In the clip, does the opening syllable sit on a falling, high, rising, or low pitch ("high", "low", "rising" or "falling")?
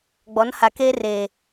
rising